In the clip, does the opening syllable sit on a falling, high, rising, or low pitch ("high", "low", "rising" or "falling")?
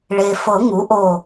low